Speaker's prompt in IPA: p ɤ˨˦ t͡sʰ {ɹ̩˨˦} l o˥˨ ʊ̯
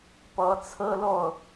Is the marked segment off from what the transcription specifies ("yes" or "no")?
yes